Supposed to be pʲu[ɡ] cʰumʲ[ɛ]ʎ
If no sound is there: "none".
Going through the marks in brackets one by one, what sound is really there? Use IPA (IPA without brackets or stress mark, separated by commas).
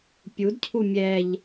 d, ɛ